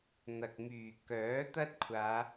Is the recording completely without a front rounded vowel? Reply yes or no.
no